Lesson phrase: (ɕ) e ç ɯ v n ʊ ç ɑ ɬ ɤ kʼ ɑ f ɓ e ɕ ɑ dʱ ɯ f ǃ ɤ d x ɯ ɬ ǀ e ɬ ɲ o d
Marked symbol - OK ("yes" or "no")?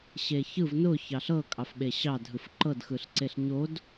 yes